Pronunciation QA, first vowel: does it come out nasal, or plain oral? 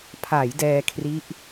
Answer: oral